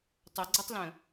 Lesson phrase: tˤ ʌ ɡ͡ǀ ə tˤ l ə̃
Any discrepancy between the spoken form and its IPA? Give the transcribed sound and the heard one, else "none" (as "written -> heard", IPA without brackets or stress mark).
none